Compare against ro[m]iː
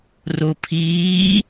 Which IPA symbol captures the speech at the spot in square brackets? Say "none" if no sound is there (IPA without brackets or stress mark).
pʰ